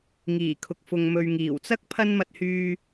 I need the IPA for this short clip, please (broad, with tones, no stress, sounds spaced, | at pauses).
ŋ iː˨˩ kʰ ʊ˨ k̚ f ʊ˨ ŋ m ɵ˨ ɥ ŋ iː˨˩ w t͡s ɐ˥ k̚ pʰ ɐ˥ n m ɐ˧ t̚ h yː˧